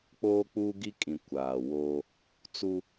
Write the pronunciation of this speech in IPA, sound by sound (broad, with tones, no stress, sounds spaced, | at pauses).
k͡p oː˦ k͡p u˦ ɡ i˦ kʼ ĩ˨ kʷ aː˨ w oː˦ | t͡s u˦